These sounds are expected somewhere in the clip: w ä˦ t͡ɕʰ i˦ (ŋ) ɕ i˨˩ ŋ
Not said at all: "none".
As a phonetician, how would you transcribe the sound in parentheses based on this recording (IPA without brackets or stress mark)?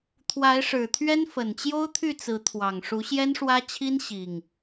n